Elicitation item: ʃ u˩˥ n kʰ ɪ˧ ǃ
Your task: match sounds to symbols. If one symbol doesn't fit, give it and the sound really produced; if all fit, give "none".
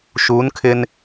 ǃ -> n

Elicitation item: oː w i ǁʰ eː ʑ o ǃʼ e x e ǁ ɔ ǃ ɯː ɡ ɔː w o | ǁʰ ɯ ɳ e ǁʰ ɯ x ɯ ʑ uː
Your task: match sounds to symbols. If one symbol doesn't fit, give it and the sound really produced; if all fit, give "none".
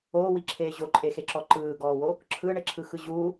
none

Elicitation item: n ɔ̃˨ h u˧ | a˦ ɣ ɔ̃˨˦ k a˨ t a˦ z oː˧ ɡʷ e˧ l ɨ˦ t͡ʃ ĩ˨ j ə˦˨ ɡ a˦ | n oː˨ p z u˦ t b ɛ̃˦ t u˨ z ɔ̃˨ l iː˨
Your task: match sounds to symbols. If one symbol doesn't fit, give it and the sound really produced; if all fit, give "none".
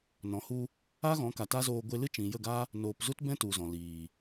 none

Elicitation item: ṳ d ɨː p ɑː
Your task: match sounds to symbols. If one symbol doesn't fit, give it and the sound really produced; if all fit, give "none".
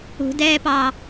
ɨː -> ɛː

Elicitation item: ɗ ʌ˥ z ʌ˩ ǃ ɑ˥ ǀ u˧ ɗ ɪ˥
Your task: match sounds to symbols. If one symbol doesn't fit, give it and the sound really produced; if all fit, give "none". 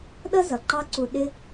none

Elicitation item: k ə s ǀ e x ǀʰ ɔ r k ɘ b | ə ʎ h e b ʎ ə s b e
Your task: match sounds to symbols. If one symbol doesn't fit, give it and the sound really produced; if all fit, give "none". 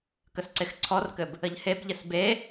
none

